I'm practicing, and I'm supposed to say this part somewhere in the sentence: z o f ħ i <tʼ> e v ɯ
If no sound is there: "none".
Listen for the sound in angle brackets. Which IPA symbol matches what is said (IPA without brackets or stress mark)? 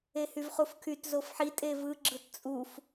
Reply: tʼ